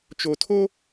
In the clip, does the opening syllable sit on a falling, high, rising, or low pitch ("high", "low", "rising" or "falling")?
low